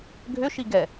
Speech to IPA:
ɡʱ ʏ ʃ i ɡ ɛ

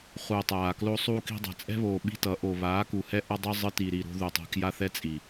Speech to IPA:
χ uː˨ tˤ aː˨ k l o˦ sˤ uː˦ k i̤˧ dˤ ɛ̤˨ t͡sʼ ɛ̤˦ β oː˨ ɓ i̤˦ t ʌ˨˦ ʔ o˨ β aː˨˦ k u˨ h ɛ˦ ʔ ʌ˧ dˤ ʌ˦ zˤ ɯ˧ t i˨ ɾ i˨ ɾ o̤˦ ð u˨ tˤ ɛ̤˧ k j a˦ θ ɛ˦ t͡sʼ i˨

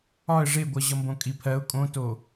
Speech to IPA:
ɒ ə̯ ʐ e ɡʷ ʌ ʑ ʌ m b õ kʼ i pʰ ɜ ʊ̯ kʼ õ t o

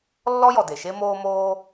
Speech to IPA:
lː ɔ˥ j ɔ˩ d e˩ ʃ e˥ m oː˥ m oː˥

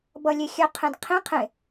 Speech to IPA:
b ʌ lʲ e xʲ œ qʰ ẽ d qʰ ĩ qʰ ẽ

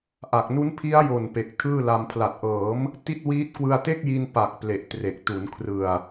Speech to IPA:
ʔ a˨˩ k̚ n u˦˥ n pʰ i˦˥ a̯ j o˨˩ n p e˨˩ k̚ tʰ ɯː˥˩ l a˧ m pʰ l a˨˩ t̚ ʔ ɤː˩˦ m | t i˥˩ t̚ w iː˦˥ t̚ k w ɯ˧ a̯ t e˥˩ k̚ j i˧ n p a˨˩ k̚ p l e˨˩ ʔ t r e˨˩ k̚ t u˩˦ n kʰ r ɯ˨˩ a̯

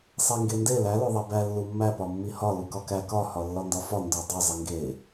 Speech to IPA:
sˤ e ŋ ɡ e n d e l æ l o ðˤ e b æ lː u mː æ p ɒ mː i h ɒ l u k ɒ k æ k ɒ h ɒ lː ɒ n d ɒ f ɒ n d o dˤ o zˤ i ŋ ɡ e

